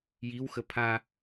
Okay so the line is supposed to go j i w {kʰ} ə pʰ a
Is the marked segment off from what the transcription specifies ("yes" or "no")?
yes